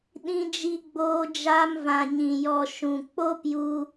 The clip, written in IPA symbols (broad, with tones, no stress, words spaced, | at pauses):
ɗĩ˧d͡ʒi˧ɡ͡boː˧ d͡ʒaː˧mvã˨ɲĩ˨ jɔ˨ ʃũ˨k͡po˦pju˧